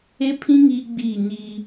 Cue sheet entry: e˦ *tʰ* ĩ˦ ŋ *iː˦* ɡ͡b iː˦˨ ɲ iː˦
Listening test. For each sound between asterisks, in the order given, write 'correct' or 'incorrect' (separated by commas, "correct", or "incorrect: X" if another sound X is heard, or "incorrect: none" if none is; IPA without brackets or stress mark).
incorrect: pʰ, correct